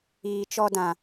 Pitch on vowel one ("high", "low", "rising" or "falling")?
low